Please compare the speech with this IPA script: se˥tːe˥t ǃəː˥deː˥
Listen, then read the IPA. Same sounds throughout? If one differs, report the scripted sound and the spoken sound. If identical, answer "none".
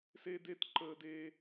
tː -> d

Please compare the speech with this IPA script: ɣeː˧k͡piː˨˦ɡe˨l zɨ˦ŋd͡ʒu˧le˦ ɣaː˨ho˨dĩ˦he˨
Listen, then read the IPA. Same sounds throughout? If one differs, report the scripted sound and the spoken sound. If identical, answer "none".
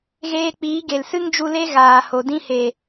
z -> s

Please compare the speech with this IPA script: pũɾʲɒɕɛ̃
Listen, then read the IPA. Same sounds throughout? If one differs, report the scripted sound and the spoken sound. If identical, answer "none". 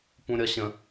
ɛ̃ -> ə̃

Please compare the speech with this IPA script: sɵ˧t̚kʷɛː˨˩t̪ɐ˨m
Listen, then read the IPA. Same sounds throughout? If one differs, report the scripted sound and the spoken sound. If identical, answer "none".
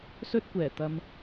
none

